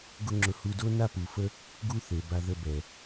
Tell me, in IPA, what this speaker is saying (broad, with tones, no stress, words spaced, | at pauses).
ɡʊ˦ŋ͡ǁʊ˧ hu˧do˦ na˦pu˨fə˦ | ɡu˦θe˨ba˧ ðə˧bɛ˨